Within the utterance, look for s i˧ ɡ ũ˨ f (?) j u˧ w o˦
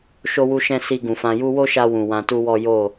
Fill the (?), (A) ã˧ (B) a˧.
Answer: A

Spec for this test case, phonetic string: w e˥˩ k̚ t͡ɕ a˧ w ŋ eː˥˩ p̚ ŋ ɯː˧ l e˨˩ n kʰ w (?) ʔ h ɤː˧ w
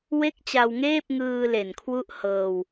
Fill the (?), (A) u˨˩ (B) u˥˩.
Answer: B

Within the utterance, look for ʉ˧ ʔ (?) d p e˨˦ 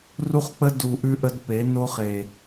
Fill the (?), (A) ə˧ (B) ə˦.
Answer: B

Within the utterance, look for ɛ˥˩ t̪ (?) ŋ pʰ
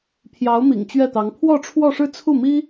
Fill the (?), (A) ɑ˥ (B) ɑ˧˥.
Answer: B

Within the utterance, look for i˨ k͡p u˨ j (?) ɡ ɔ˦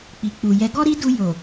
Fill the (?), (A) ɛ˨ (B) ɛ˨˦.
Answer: B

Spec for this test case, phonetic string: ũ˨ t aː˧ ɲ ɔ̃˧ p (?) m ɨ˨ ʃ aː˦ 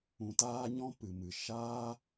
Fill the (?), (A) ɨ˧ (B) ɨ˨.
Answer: B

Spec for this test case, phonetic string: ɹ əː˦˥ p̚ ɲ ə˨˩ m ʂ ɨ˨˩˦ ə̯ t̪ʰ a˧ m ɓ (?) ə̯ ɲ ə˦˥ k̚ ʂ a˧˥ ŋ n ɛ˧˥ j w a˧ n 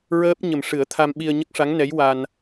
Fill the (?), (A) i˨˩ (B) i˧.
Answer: B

